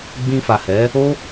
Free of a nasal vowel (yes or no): no